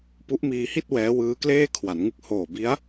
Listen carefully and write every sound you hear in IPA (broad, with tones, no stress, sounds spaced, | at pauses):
p u˦˥ ʔ m iː˧ h i˥˩ t̚ w ɛː˦˥ w ɯː˦˥ k l eː˥˩ kʰ w a˩˦ n ŋ ɯ˥˩ k̚ h oː˨˩ b i˦˥ a̯